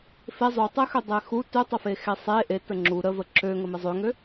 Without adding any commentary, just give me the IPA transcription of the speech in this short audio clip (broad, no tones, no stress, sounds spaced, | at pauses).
f e zˤ u tˤ e x ø dˤ e x u t ø tˤ ə f e x e sˤ e ʔ e t ə ŋ͡ǁ u ɾ ə v ə ǁ ø ŋ ə m e zˤ ø ŋ ø